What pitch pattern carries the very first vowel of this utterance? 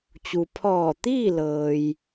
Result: low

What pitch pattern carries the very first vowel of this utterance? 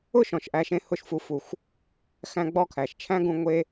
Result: falling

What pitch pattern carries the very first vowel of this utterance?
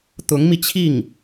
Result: rising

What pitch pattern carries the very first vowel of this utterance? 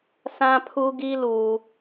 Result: high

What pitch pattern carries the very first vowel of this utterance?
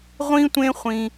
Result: high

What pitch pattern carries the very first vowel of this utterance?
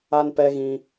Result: high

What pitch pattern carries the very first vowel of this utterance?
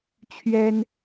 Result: high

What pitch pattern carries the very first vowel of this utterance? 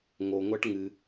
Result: low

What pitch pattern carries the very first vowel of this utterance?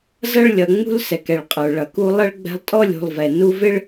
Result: high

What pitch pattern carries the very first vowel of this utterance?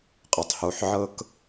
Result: low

